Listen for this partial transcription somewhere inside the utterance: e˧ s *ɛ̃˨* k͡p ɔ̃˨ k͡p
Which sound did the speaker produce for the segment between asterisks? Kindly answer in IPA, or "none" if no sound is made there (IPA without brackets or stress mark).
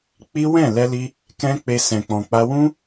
ɛ̃˨